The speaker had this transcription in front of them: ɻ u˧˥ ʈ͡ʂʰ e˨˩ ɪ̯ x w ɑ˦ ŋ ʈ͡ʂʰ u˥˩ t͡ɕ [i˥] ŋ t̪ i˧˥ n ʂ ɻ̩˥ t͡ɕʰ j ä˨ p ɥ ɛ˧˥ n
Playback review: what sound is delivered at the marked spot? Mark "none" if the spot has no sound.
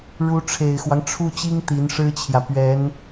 i˥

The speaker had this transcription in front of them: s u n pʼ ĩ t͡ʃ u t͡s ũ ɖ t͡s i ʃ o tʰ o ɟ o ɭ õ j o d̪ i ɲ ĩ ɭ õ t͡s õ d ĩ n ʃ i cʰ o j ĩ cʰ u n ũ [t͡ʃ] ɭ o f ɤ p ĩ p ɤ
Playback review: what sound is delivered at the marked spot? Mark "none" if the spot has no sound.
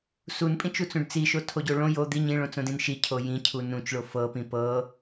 t͡ʃ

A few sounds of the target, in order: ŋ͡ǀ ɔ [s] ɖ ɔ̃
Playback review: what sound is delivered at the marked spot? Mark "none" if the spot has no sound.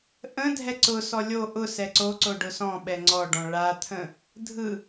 none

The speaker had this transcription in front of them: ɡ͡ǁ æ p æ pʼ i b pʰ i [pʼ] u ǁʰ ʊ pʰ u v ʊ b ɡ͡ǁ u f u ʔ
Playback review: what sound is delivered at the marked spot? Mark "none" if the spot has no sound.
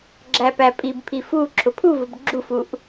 f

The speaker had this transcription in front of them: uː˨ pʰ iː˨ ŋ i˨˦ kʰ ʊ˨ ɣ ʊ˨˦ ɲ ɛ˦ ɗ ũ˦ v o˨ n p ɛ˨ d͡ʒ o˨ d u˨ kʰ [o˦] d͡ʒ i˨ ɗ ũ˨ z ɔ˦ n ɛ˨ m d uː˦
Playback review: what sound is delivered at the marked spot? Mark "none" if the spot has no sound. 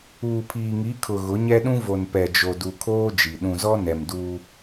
oː˦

